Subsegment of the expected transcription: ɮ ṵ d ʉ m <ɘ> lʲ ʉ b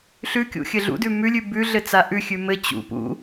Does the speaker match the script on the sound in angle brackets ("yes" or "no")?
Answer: no